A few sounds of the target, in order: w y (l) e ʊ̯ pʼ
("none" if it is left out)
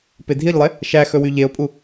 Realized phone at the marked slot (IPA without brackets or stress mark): ʎ